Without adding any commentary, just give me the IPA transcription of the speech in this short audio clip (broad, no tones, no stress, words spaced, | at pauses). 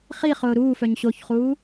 χiχʊː ɾuːfœɲ ɕoçχuː